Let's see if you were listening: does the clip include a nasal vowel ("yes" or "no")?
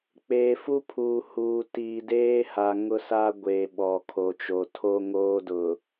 no